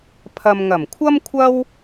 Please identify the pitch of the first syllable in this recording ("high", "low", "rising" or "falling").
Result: low